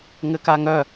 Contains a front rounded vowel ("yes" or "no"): yes